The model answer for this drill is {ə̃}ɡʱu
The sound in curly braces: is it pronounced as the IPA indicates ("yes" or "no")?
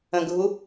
yes